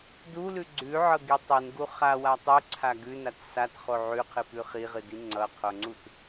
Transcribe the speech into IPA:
d u l ʉ ɡ͡ǀ ʉ ʕ ɤ ɡ i tˤ ɨ n ɡ u χ a w a tˤ u ǀʰ a ɡ ʉ n a t s a t χ o ʕ ʉ qʰ ɨ p ʉ χ i ʁ ɨ d i ŋ͡ǀ ʌ qʰ o ŋ͡ǀ u t

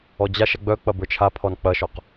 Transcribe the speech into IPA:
ɔ d͡ʑ a ʃ ɐ ɡ͡b œ k͡p ɐ b ə˞ t͡ʃʰ a pʰ ɔ n k͡p ɐ ʃ ɔ q

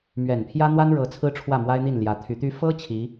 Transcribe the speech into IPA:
m ɥ ɛ˨˩ n pʰ j ä˥ n̪ w a˥ n ɻ ɤ˧˥ t͡sʰ ɹ̩˥ ʈ͡ʂʰ w ä˥˩ m w a˥ ɪ̯ n̪ i˥˩ n l j ä˧˥ t̪ʰ y˧˥ t̪ y˥ f ɤ˥ t͡ɕʰ i˧˥

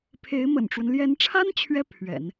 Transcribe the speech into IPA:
pʰ e˧˥ ɪ̯ m ə̰˨˩ n ʈ͡ʂ w ə˦ n l j ɛ˧˥ n ʈ͡ʂʰ a˥ n t͡ɕʰ ɥ ɛ˥ pʰ ɥ ɛ̰˨˩˦ n

